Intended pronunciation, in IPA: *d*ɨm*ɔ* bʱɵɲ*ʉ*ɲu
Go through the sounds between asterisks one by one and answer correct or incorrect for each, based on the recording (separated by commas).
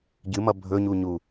incorrect, incorrect, incorrect